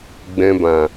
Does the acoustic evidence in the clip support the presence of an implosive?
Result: no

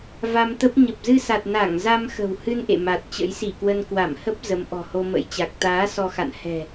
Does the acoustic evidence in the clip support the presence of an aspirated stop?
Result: no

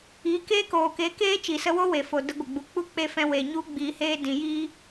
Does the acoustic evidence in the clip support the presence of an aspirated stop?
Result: no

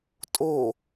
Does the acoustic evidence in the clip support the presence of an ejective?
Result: yes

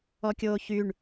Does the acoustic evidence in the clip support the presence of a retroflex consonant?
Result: yes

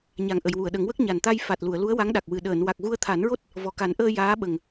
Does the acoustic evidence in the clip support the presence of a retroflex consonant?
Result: no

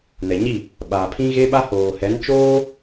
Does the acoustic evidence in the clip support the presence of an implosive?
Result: yes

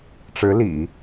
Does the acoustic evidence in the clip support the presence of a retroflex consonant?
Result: yes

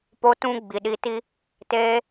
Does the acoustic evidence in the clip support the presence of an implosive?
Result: yes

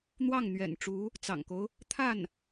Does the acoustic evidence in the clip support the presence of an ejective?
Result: no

